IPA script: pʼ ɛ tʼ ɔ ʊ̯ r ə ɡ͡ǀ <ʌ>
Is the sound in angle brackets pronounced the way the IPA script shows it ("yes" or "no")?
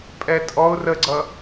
yes